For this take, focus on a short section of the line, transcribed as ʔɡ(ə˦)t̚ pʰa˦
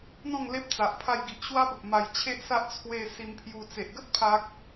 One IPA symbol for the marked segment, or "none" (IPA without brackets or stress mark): ə˦